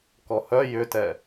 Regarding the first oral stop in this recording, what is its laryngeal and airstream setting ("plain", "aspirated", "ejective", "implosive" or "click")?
plain